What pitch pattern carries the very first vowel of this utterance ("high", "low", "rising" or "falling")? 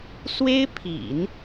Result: high